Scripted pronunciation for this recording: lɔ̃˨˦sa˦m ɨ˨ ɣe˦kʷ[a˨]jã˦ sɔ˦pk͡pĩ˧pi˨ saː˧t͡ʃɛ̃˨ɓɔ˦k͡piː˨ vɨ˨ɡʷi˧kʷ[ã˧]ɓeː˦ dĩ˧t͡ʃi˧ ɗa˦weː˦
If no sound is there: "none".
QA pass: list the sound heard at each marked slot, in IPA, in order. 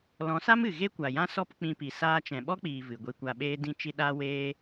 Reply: a˨, a˧

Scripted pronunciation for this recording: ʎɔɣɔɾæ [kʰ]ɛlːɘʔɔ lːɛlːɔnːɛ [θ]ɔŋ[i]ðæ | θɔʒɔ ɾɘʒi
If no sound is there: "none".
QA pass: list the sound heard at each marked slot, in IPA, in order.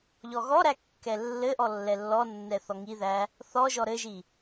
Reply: kː, θ, i

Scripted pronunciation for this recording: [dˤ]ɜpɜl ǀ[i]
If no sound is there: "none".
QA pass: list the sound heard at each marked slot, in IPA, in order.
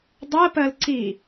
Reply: dˤ, i

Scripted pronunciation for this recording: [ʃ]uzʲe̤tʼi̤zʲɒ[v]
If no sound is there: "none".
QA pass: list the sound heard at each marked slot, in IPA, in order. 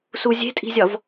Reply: s, v

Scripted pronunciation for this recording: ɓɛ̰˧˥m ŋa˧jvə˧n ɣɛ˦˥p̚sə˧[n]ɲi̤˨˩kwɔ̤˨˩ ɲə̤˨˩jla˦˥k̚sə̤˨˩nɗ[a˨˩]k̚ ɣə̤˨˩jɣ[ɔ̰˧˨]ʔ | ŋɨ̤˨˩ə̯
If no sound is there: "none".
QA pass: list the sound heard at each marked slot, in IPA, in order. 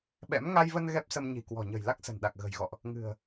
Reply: m, a˨˩, ɔ̰˧˨

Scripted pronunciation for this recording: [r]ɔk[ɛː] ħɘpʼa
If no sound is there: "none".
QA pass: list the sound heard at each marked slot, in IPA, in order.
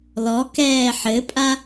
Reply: l, ɛː

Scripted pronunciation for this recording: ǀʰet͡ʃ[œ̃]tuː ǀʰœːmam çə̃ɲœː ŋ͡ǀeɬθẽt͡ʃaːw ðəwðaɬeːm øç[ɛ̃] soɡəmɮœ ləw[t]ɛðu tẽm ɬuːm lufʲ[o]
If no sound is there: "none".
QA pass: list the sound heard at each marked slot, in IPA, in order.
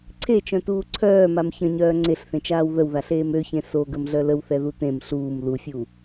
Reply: œ̃, ẽ, θ, u

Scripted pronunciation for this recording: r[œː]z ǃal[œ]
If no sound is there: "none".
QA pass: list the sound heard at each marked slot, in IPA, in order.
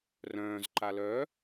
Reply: œ̃ː, œ

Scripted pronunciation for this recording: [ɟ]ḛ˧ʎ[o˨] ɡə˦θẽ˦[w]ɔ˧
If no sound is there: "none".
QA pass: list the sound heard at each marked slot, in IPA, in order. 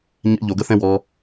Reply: ɲ, o˨, w

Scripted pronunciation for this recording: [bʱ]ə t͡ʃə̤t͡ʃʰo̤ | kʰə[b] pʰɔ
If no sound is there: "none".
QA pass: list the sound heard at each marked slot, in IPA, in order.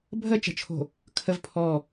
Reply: bʱ, v

